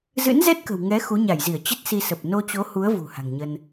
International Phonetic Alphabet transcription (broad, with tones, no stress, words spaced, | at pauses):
zɨ̰˧˥nzɛ˦˥t̚kə̤˨˩w ŋɛ˨˦ xu˨˦ ɲa˧˩jzi˧˩ə̯ t͡ɕə˦˥t̚ si˧sə˨˩p̚ no˧t͡ɕo˨˦hu˨˦ə̯ vṳ˨˩ha̤˨˩ŋɲə˧n